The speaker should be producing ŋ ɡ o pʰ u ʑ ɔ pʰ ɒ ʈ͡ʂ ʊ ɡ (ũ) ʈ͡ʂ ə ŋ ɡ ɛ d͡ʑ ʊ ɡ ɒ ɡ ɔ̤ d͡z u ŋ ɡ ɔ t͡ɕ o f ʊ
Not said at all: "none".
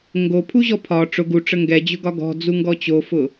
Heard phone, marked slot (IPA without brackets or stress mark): u